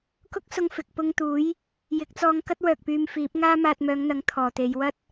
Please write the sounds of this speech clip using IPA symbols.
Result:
k ʊ˥ k̚ s ʊ˧ ŋ f ɪ˨ k̚ p ʊ˧ ŋ t̪ uː˨˥ j | j ɪ˨˥ k̚ t͡s ɔː˧ ŋ k ɐ˥ t̚ w œː˨ k̚ p yː˧ m f iː˨˥ p̚ ŋ aː˥ m aː˧ t̚ m œː˨˧ ŋ n̪ ɐ˨˥ ŋ t̪ʰ ɔː˨ t̪ e˨˧ j w ɐ˥ t̚

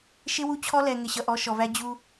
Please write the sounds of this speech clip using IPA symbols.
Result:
ʃ ɪ˦ w u˦ t͡ɕʰ ɔ˦ l ɛ˨ ŋ ɪ˨ ɕ ʌ˨ ʔ ɔ˨˦ ʃ ɔ˨ v æ˦ d͡ʑ u˦

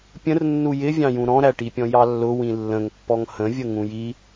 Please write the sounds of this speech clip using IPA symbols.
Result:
pʲ ə̃ r nː u j ɪ vʲ ɑ̃ j ũ ɾ ɔ̃ ɾ æ ʈ i pʲ ɔ̃ j ɑ lː ʊ w ĩ lː ə̃ ŋ pː ɔ ŋ h ə̃ vʲ ə ŋ ũ j i

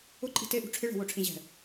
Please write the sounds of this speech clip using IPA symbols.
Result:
ʊ ǃʼ i̤ t e ʔ ṳ ʈ͡ʂʰ ɪ ɭ ɛ̤ w o ʈ͡ʂʰ ĩ ʑ ɛ̤

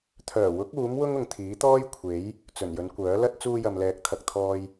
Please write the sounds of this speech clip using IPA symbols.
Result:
t̪ʰ œː˨˩ w ʊ˨˥ k̚ uː˨˥ m w ʊ˥ ŋ ʊ˨ ŋ t̪ʰ iː˨˥ t̪ ɔː˥ j kʷʰ e˨˥ j | t͡s ɵ˨˩ n j ɵ˨˧ n kʷ œː˨˥ l ɐ˥ t̚ t͡s uː˧ j ɐ˨ m l ɛː˨˥ k̚ t̪ʰ ɐ˨ k̚ t̪ʰ ɔː˧ j

